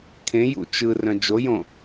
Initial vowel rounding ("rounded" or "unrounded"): unrounded